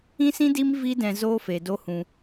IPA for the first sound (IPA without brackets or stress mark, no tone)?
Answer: ĩ